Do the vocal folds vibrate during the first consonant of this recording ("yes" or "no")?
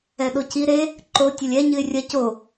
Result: yes